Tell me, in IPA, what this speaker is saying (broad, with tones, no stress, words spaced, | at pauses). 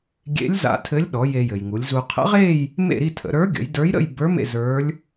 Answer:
ɡʲḛ˧˥lʲza̰˧ tʰɘ˧˥lʲɗɔ˩˧ je˧jɘ˩jŋu˩˧lʲzu˧ qʰə̰˧˥ʁe˥˧j | mḛ˥˧ɾi˥˧ tʰə̰˩˧ɾə˞˧˥ɡʲə̰˩˧j də˞˧˥jɾə̰˥˧j bə˞˧˥ mḛ˥˧zə˞˧˥lʲ